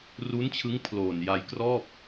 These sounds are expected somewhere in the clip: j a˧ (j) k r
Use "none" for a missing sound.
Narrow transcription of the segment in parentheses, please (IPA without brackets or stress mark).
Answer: j